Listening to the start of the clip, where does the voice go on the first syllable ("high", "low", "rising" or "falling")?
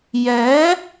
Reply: rising